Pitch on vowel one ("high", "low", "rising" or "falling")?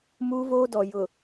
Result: high